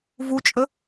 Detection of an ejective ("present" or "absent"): present